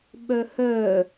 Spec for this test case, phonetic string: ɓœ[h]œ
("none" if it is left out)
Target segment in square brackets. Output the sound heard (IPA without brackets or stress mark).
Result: h